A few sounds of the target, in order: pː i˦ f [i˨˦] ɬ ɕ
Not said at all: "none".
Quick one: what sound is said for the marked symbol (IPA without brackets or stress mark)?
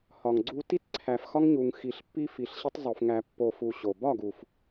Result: i˨